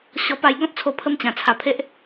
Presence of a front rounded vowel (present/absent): absent